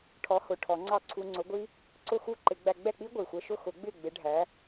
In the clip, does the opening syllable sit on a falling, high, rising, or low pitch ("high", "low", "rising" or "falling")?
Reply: rising